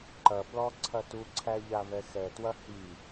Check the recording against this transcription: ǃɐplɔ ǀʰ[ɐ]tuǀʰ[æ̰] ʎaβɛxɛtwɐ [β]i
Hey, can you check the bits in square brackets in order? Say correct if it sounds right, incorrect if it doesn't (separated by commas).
correct, incorrect, incorrect